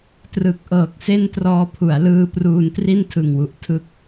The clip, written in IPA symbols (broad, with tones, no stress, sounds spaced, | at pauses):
t r ɯ˨˩ k̚ ʔ ɤː˨˩ k̚ s e˥˩ n t r ɔː˧ pʰ u˩˦ a̯ l ɯː˧ p r uː˧ n t r i˥˩ n tʰ ɯ˨˩ ŋ w u˨˩ ʔ tʰ ɯ˦˥ k̚